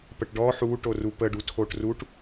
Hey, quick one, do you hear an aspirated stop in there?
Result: yes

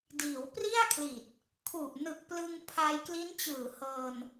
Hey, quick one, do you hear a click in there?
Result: no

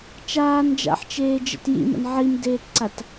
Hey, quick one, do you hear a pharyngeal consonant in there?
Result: yes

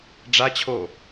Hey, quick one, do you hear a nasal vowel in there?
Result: no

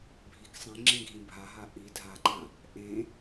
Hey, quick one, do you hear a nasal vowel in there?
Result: yes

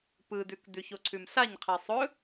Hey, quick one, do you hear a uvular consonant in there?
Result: yes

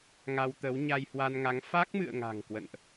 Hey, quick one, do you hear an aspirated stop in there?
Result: no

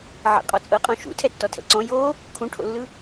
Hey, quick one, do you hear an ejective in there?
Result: yes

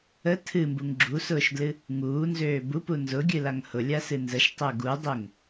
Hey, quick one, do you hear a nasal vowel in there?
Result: no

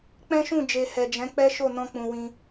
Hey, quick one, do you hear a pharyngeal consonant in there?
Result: no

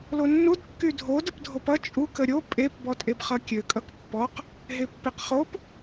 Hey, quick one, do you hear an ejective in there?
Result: yes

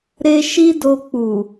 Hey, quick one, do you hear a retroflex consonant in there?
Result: no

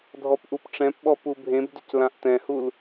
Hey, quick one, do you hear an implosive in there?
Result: yes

